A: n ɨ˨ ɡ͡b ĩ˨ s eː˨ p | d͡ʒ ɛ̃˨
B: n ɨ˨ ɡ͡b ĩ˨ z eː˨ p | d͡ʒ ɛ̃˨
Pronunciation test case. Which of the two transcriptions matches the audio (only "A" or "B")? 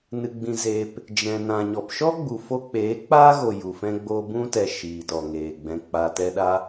B